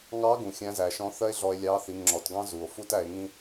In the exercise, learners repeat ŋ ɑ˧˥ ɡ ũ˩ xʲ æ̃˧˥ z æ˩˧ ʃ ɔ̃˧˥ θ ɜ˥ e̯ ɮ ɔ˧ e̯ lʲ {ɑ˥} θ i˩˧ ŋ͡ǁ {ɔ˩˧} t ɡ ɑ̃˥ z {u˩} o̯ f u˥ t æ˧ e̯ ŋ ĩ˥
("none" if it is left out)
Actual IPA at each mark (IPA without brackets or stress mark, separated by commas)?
ɑ˧˥, ɔ˩˧, u˩